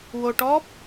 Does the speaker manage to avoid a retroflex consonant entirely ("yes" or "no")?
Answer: no